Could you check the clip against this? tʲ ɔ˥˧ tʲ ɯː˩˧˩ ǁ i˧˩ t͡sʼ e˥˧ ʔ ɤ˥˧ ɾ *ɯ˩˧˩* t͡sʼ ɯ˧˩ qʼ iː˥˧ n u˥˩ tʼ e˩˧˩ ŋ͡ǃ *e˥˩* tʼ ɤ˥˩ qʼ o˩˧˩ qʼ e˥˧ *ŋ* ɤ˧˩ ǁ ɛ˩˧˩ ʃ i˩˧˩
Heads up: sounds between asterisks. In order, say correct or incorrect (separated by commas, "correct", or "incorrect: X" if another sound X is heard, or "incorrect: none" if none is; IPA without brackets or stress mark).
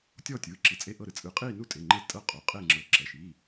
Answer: correct, correct, incorrect: ŋ͡ǁ